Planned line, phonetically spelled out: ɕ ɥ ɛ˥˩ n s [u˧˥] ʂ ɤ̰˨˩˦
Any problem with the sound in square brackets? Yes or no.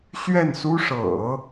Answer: yes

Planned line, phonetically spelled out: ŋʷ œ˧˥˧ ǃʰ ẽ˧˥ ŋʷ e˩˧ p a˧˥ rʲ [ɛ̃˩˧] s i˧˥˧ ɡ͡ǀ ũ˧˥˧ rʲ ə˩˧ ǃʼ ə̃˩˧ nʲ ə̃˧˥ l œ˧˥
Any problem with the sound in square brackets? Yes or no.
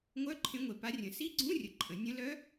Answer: yes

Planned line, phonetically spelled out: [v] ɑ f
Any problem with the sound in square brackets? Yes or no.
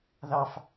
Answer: yes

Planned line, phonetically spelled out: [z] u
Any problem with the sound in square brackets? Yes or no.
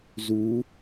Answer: no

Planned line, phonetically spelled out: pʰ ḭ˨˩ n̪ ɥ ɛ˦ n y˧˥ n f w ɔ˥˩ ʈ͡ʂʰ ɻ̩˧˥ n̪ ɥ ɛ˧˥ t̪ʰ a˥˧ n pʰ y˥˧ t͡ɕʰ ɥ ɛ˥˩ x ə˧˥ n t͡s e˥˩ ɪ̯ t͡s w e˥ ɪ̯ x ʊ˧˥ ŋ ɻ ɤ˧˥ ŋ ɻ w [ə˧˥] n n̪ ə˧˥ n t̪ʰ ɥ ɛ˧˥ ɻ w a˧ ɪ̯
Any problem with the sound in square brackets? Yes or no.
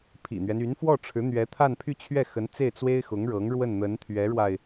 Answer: yes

